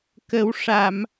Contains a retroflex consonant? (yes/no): yes